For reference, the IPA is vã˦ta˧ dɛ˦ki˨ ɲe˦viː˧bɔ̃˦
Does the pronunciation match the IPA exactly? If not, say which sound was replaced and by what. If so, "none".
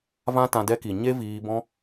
a˧ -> ã˧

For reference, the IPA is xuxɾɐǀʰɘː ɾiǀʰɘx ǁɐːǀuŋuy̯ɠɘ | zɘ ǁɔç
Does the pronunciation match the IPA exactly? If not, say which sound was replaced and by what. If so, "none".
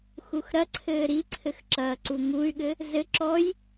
ç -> j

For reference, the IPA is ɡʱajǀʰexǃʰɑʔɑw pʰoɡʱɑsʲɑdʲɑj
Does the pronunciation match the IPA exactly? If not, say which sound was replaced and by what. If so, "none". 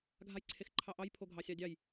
w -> j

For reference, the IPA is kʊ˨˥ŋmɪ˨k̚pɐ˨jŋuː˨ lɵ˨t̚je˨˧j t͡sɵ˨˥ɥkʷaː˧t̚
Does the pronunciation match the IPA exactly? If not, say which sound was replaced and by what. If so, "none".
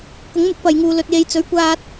ɪ˨ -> ɪ˨˥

